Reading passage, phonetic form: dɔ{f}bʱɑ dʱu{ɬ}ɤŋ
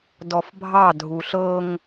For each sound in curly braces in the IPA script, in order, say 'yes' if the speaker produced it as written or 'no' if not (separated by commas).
yes, yes